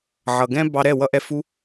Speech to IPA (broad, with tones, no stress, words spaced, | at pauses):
ʕʌ˨ɡɛ̃˦bɑ˧ ɾɛ˦˨wʌ˧ʔɛ˧ fu˧